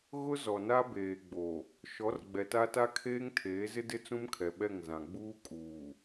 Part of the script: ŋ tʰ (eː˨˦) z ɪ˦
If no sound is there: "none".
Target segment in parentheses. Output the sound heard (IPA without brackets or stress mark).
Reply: eː˨˦